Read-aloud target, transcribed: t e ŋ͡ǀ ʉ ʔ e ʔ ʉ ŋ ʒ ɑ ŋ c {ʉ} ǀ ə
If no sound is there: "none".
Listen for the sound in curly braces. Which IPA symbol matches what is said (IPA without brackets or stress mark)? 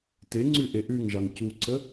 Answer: u